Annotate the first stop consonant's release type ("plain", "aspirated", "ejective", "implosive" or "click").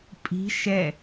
ejective